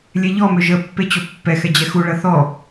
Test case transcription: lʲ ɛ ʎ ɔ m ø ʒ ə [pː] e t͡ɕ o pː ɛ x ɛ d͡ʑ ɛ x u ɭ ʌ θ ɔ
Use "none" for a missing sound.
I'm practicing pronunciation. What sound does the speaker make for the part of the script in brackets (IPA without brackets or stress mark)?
pː